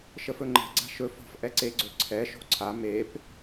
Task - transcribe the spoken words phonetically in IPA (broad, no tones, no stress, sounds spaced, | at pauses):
ʃ ə f ɵ ŋ͡ǃ ɛ̤ ɡ͡ǀ a̤ ʃ ɵ f ɔ̤ f ʔ ɛ ǀ e ɡ͡ǀ ɵ ǀʰ ɛ ʃ o̤ ǀʰ a m e p